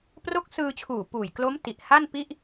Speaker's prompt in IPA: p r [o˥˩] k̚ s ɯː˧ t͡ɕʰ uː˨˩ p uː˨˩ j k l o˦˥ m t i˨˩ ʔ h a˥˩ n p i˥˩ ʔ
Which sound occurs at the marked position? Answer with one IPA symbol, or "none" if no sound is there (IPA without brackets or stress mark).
o˦˥